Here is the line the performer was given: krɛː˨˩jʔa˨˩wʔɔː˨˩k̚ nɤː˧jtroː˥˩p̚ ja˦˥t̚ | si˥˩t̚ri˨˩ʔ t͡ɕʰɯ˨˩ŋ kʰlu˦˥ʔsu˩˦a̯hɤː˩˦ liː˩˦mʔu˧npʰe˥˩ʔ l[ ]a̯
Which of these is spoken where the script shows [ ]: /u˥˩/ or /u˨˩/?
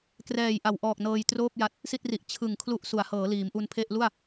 u˥˩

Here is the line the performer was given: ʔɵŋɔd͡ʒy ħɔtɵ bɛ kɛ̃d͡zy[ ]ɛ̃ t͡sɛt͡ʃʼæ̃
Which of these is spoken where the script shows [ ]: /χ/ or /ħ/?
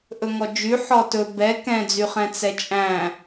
χ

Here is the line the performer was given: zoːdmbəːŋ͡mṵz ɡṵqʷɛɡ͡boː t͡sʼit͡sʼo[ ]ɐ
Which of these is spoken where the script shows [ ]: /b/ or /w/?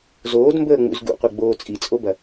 b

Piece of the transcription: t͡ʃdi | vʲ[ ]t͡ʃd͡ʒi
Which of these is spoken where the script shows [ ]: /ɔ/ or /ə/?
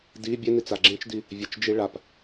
ə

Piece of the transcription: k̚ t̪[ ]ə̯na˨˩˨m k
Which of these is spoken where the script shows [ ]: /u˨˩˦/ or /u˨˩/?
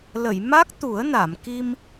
u˨˩˦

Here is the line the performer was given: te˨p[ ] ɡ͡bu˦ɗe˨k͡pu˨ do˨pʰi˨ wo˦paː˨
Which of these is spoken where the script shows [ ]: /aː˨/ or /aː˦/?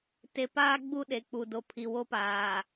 aː˦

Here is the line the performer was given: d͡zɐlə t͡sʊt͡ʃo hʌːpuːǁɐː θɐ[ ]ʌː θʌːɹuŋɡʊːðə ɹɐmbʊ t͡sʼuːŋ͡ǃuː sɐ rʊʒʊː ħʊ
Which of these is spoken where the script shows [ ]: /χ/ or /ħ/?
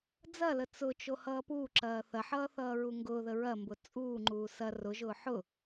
ħ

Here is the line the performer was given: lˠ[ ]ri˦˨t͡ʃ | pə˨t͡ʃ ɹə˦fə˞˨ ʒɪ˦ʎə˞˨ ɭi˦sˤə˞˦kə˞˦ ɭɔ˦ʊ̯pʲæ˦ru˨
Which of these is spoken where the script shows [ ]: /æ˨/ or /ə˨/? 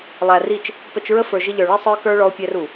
æ˨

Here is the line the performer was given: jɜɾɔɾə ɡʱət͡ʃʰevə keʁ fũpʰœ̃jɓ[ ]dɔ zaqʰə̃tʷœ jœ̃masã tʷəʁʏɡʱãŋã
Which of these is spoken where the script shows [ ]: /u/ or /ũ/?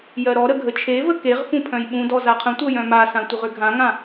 ũ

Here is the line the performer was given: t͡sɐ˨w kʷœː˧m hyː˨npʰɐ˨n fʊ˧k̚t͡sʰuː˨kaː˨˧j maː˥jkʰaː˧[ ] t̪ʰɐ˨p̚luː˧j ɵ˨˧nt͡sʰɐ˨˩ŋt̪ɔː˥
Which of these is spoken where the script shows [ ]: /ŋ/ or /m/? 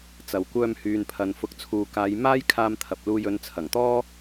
m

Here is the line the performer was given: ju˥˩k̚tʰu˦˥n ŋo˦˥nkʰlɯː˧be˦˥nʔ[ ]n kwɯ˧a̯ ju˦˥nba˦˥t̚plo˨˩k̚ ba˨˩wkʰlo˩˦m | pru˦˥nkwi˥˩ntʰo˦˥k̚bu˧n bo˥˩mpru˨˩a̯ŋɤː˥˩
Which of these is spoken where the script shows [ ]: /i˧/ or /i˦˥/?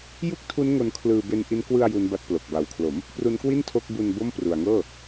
i˦˥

